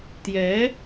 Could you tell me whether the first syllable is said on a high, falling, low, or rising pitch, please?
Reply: rising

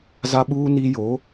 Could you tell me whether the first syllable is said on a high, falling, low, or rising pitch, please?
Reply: high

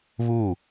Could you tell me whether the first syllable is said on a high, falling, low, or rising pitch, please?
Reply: falling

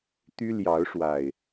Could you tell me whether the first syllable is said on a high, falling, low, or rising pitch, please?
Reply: high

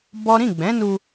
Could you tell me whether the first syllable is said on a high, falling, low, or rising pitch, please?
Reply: high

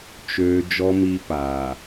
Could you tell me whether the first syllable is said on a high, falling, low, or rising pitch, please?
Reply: low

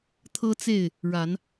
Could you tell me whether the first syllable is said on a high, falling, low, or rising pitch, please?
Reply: high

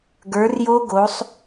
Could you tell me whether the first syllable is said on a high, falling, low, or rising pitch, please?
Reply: rising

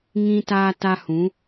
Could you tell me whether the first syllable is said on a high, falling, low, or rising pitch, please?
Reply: high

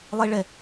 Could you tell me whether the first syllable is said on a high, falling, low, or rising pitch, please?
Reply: high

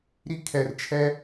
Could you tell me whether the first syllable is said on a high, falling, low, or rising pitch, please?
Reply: high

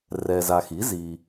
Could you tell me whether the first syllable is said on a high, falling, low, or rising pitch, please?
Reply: low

